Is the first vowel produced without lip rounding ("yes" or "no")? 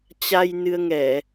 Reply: yes